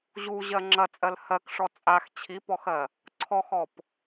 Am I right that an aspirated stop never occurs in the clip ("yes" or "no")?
no